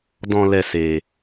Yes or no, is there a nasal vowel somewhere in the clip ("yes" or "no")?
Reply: yes